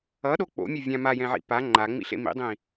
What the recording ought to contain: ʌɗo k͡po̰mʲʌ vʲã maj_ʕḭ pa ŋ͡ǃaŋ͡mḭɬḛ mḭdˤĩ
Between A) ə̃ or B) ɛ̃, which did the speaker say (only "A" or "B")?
B